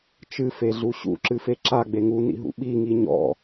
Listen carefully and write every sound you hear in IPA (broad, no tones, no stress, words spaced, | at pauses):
t͡ʃɨfeɮu ɕṵǁɨfe ǁaɡ͡be ŋunḭɦṵ ɓiŋi ɲɔ̰